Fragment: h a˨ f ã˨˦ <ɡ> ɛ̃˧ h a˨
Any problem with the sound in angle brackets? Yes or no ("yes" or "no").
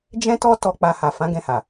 no